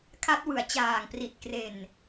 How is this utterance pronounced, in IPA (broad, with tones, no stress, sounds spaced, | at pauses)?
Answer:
kʰ a˦˥ t̚ w ɯ˨˩ a̯ t͡ɕ aː˨˩ ŋ p r i˨˩ t̚ k r e˨˩ n